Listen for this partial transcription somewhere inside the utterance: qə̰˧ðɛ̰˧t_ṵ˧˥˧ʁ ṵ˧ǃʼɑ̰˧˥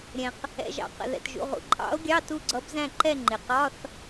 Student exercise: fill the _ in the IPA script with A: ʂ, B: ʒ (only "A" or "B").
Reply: B